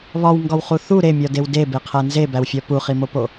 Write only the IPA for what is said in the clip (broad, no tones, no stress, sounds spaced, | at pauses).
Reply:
β ɒ w ŋ ɡ ɒ w χ u θ u ɾ e mʲ ɒ d e w d e b e qʰ æ n z e b æ w fʲ ɒ p u χ i m o p o